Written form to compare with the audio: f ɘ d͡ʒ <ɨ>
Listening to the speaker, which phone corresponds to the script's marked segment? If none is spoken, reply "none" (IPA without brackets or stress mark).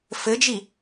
i